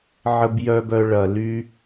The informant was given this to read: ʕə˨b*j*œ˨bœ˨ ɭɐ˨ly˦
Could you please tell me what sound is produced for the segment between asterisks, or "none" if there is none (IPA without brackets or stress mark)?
j